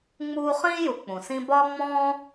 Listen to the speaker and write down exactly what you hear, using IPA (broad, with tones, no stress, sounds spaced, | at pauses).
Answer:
ŋ͡m uː˦ χ ĩː˥ j u˨ k͡p ũ˩ s ĩ˦ b ɒː˥ ŋ͡m ɔ̃ː˥